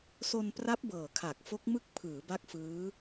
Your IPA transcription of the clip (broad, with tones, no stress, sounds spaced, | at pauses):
s o˧ n p r a˦˥ p̚ b ɤː˨˩ kʰ a˨˩ k̚ f o˦˥ k̚ m ɯ˦˥ k̚ pʰ ɯː˩˦ b a˦˥ k̚ f ɯː˦˥